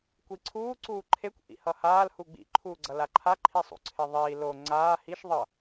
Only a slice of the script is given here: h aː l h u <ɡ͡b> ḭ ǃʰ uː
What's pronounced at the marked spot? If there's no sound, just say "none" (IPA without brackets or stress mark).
ɡ͡b